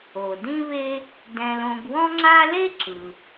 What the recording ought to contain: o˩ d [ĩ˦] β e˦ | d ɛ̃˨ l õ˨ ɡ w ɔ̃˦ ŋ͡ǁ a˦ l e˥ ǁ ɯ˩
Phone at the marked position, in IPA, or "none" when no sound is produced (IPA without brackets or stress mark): ĩ˦